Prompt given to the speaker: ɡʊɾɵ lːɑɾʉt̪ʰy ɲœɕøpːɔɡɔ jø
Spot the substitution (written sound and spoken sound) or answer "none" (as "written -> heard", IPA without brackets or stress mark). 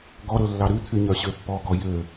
ʊ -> ɔ